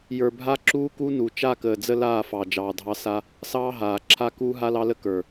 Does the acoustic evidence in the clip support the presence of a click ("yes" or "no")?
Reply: yes